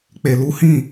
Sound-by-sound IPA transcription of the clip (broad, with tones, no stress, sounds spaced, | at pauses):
k͡p e˨ l u˨˦ h ĩ˦˨